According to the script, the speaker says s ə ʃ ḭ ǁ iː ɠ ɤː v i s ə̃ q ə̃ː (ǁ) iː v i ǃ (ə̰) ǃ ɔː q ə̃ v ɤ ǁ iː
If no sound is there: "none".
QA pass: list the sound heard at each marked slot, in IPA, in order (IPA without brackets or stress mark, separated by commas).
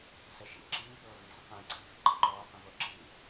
ǀ, ə̰